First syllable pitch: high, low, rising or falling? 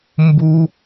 high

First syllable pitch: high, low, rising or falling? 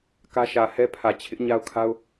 high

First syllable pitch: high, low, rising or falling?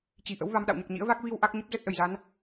low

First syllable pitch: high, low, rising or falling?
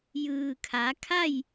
low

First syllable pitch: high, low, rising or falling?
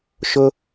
high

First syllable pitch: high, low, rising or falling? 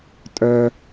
high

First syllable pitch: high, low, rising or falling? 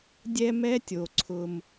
high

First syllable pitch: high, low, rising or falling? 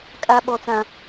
high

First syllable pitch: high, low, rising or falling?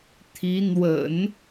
rising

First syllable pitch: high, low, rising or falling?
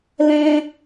high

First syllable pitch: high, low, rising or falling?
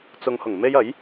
low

